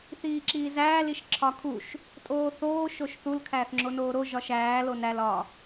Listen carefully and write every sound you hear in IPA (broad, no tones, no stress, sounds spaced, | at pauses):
θ iː ǁ iː z æː l i ʃ ǁʰ ɒ kʰ u ʃ | tʼ oː θ oː ʃ o ʃ θ u l kʰ æː θ ŋ͡ǁ o n oː ɾ o ʒ ɒ ʃ æː l o n æ l ɒ